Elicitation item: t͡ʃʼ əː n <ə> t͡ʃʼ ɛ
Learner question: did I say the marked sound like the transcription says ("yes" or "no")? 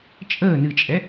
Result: no